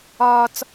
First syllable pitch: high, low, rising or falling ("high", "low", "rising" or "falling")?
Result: high